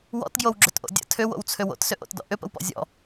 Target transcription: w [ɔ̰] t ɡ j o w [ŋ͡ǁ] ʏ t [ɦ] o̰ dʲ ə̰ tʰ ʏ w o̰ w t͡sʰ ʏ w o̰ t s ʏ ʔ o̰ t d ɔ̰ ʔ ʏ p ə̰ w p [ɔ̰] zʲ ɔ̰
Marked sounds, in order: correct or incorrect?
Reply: correct, incorrect: ɡ͡ǁ, incorrect: ʔ, correct

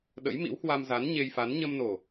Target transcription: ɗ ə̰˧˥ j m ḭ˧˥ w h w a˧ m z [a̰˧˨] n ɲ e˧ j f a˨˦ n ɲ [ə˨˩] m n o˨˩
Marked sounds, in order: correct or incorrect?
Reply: incorrect: a˨˦, incorrect: ə˧

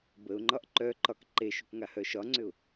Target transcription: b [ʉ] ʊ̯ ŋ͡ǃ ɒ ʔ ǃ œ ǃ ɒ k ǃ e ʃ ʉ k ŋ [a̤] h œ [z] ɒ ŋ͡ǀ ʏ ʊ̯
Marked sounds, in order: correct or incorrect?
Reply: incorrect: ə, incorrect: a, incorrect: ʃ

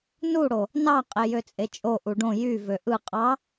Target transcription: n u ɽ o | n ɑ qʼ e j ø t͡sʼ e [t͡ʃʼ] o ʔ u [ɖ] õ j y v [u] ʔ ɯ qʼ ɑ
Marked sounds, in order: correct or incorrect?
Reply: correct, correct, incorrect: ø

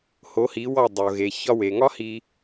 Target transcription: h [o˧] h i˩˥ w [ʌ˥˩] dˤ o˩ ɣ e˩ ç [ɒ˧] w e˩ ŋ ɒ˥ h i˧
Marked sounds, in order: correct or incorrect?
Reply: incorrect: o˩˥, incorrect: ɒ˥˩, correct

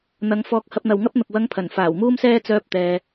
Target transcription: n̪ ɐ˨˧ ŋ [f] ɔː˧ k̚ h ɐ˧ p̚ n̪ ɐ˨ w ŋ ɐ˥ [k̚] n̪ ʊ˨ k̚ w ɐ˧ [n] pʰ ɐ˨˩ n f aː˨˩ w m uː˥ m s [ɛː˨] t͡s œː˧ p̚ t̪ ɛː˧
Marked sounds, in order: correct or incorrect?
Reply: correct, incorrect: p̚, incorrect: ŋ, incorrect: ɛː˥

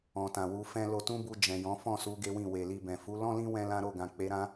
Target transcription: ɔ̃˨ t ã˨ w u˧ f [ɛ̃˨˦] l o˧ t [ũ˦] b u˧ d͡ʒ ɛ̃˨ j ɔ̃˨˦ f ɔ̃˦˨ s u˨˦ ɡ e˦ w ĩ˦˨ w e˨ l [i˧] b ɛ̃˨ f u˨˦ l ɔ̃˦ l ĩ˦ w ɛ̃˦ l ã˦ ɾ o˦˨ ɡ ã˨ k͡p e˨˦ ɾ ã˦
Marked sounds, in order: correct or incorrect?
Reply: incorrect: ɛ̃˦, correct, correct

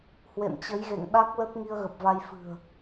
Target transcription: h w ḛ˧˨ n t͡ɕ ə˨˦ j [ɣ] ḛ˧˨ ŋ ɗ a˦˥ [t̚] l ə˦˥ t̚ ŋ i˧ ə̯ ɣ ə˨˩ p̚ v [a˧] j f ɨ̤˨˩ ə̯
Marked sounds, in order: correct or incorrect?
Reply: correct, incorrect: k̚, correct

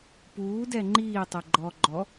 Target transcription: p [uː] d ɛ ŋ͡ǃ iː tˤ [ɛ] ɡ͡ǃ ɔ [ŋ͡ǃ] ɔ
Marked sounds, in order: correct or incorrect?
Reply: correct, correct, incorrect: ɡ͡ǃ

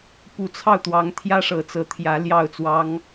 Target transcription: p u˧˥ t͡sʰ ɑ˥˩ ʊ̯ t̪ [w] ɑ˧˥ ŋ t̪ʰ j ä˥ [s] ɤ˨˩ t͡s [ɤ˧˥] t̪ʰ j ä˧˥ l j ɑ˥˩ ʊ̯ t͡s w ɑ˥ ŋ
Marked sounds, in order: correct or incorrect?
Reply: correct, incorrect: ʂ, correct

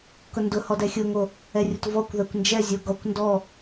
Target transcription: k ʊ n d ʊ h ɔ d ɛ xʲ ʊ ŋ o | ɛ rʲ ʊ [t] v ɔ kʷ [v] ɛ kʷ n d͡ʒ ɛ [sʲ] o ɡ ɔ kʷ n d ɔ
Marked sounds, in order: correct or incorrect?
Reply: correct, incorrect: ð, incorrect: zʲ

